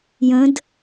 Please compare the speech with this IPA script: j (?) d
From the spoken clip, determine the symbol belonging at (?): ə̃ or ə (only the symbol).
ə̃